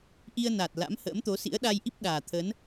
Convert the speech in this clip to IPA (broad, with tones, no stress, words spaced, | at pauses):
ʔi˧ə̯na˨˩t̚ la̰˧˥mhə̰ː˧˥mt̪o˨˦sḭ˧˥ə̯ ɗa˧jʔi˦˥p̚ ɗaː˨˩t̪ʰə˨˦n